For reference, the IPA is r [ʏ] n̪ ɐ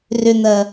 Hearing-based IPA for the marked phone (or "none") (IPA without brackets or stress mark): ʏ